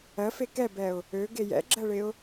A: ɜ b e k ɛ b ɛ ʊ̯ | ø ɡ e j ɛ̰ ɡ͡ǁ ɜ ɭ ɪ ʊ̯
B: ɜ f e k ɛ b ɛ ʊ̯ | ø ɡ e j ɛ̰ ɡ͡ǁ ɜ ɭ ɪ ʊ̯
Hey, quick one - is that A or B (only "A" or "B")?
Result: B